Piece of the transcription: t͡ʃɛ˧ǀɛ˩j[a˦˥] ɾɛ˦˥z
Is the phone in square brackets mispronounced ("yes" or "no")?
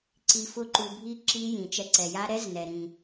no